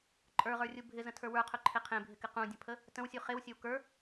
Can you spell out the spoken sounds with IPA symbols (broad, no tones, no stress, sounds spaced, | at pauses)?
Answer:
ǃʼ ə˞ ʁ ə˞ rʲ u bʱ ɪ z ə̃ tʰ ə˞ w ə˞ qʰ ɵ ǃʰ e qʰ ẽ bʱ ɪ k ɪ q ũ dʲ ə̃ pʰ ə | t ə̃ w sʲ u χ e w sʲ ɵ w k ə˞